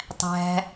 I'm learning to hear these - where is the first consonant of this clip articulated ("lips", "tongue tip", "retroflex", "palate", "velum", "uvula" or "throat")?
tongue tip